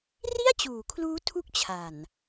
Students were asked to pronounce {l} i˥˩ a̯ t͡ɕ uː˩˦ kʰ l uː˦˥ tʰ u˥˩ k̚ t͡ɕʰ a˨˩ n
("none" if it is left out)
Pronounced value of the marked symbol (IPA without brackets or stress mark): r